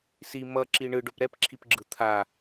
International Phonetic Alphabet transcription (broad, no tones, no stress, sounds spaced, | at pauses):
s i m ʌ ǁ i ɳ ɯ ɖ o p ɾ ɛ p ǁʰ i p ɡ͡ǁ ɯ t̪ʰ a